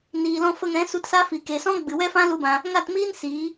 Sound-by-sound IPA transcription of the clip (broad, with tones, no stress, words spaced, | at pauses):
niː˨lɔ̃˧fə˧ŋɛ̃˨˦ su˧tsa˦fi˨ ke˨sɔ̃˦ ɡ͡bɨ˨wɛ˦fã˦ lu˦bã˧ | ŋa˦˨tmiː˦n siː˨˦